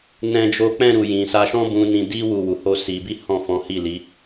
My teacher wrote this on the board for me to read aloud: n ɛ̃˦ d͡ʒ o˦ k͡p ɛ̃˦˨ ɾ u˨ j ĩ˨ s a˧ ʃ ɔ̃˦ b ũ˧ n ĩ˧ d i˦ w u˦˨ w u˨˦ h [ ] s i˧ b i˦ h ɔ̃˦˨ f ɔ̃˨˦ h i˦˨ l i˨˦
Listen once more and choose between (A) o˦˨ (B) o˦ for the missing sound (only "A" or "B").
B